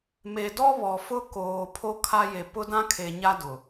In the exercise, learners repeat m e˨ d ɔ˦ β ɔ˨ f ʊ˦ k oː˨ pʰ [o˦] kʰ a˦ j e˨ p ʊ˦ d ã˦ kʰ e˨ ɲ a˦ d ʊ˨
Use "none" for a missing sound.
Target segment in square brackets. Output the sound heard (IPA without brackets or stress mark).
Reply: o˦